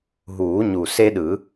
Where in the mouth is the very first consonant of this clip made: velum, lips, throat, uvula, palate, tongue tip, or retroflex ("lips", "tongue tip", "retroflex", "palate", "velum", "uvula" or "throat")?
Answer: throat